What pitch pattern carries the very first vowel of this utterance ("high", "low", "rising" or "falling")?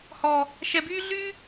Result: low